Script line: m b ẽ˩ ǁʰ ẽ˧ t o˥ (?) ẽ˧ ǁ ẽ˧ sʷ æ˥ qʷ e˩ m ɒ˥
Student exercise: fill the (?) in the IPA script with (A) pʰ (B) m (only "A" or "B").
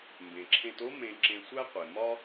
B